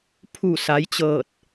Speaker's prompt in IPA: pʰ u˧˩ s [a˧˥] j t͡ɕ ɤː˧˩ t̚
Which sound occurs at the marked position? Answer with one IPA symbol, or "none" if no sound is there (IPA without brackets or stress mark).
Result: a˩˧